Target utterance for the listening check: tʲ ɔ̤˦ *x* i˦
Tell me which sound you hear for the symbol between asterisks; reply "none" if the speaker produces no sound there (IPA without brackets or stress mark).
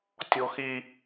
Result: x